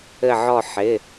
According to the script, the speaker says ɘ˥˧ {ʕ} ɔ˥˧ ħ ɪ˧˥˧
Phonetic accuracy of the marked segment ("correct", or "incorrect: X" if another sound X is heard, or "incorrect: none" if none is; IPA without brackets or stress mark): correct